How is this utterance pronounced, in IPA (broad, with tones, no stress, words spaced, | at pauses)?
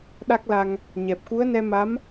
ɗa˦˥k̚la˧ŋ | ɲɛ˨˩p̚ku˧˥ə̯nɛ˧ma˧˥m